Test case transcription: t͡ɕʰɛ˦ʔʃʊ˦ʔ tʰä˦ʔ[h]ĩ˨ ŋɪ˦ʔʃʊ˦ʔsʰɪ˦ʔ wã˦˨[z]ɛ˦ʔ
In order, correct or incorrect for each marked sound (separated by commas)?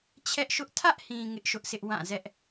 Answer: correct, correct